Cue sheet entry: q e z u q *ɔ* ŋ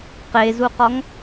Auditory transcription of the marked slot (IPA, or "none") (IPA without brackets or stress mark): ɔ